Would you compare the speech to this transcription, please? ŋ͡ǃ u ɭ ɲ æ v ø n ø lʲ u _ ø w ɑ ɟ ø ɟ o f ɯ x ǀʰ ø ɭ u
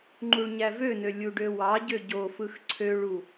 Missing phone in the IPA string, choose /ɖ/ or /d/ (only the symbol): ɖ